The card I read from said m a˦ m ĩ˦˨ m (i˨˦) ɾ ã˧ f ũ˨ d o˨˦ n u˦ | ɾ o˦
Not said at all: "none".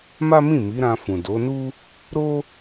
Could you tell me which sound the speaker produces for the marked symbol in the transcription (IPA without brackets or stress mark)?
i˨˦